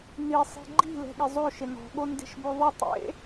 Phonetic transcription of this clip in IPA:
n i sˤ i̤ ɡ͡ǃ i̤ l ɛ̤ ɠ ɪ zˤ o ʃ ɪ n ɔ̤ ɠ o n d e̤ ʃ b o ðˤ ɪ tˤ ḛ

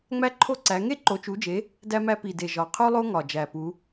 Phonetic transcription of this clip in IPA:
ŋ͡m æ˥ ǃʰ o˥ ǀ æ˨˦ ŋ e˥ ǃ o˨˦ t͡ʃ u˨˦ d͡ʒ e˨˦ | d æ˥ m æ˥ p i˨˩ d e˨˩ ʒ ɒ˨˩ qʰ u˥ lˠ o˥ ŋ ɒ˨˩ d͡ʒ æ˨˩ p u˨˦

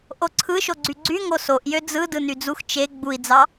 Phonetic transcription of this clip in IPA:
ʔ o ǀʰ ɯ ʃ o ɡ͡ǀ y ɡ͡ǀ y ŋ o s o ʔ j ø d͡z ɯ d ɯ n y d͡z u x t͡ʃ e ɡ͡b u i̯ d͡z ɑ

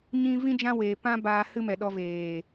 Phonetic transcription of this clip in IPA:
ɲ ĩ˦ v ĩ˦ d͡ʒ ã˦ w e˧ p ã˦ b aː˧ h ɨ˦ m ɛ˨ ɗ ɔ˧ v eː˨

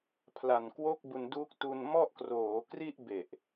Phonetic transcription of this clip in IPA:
pʰ l a˨˩ n k w o˥˩ k̚ b u˧ n d uː˦˥ k̚ t u˧ n m ɔ˥˩ ʔ k r oː˩˦ k r i˥˩ ʔ b e˨˩ ʔ

